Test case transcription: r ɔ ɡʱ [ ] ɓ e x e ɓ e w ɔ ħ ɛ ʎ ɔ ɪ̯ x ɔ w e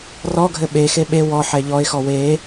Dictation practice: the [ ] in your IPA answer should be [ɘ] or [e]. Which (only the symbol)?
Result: ɘ